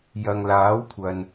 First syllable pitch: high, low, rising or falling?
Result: low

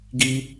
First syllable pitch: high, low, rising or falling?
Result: high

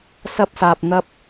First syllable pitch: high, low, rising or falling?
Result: high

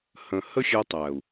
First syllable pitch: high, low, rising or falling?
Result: low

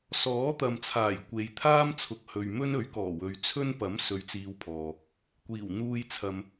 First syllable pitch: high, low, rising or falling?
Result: rising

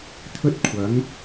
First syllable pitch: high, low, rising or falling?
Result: high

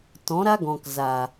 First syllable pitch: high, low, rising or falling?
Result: rising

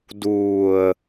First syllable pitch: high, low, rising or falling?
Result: low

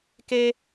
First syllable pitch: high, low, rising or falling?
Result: high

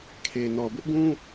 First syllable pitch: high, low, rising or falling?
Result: low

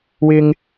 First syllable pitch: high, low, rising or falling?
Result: high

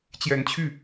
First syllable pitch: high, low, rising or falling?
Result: rising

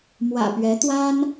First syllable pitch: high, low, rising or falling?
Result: low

